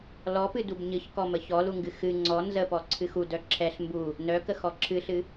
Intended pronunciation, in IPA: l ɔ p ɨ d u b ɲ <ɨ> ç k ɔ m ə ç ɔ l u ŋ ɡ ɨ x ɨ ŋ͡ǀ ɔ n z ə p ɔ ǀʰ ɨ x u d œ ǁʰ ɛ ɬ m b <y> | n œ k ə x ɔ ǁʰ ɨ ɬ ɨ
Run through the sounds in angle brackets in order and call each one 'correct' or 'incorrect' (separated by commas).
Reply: correct, incorrect